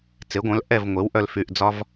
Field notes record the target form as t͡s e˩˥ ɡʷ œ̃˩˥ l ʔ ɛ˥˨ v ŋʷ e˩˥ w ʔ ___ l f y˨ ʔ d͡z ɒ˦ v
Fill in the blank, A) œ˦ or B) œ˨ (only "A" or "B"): B